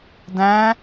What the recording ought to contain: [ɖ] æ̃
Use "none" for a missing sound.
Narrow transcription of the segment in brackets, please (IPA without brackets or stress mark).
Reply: d